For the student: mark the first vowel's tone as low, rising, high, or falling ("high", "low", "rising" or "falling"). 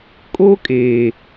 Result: high